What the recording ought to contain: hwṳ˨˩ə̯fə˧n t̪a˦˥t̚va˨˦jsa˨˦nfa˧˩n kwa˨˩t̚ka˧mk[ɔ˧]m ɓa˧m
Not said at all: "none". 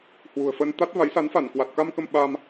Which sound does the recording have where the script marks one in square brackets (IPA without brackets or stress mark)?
ə˧